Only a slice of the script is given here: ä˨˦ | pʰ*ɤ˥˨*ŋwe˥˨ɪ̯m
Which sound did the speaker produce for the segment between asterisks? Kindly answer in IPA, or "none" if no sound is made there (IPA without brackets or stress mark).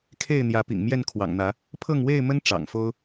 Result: ɤ˥˨